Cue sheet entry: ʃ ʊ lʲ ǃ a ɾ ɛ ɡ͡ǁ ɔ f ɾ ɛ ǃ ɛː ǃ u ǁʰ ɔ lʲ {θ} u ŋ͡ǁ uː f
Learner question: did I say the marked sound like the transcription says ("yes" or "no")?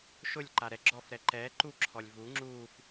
no